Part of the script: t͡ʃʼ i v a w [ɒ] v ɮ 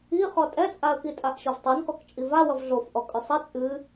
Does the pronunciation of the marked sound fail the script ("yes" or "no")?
yes